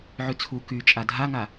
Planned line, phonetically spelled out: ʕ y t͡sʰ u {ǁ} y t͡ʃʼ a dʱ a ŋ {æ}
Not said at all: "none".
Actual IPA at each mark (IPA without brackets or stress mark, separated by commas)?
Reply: k, a